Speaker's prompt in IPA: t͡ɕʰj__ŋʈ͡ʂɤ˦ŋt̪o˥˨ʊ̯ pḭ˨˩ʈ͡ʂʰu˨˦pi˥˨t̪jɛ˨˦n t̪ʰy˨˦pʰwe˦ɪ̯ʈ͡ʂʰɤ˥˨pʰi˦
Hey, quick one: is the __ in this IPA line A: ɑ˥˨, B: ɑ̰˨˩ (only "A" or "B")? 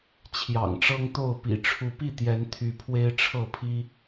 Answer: B